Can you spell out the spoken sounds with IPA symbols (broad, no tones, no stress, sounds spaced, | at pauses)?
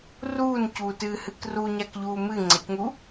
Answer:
r uː n c uː t ɨː h ɨ k r u ɲ a k ʎ uː m ɨ ŋ͡ǀ ɐ c ŋ u